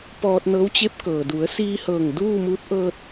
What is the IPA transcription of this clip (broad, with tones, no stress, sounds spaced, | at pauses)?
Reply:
p ɔː˧ t̚ n ɤː˧˥ w t͡ɕ e˧˥ p̚ k ɤː˩ d u˩˧ ə̯ s iː˧ h ɤː˧˩ ŋ d uː˥˨ m uː˧˥ t̚ ʔ ɤː˧ t̚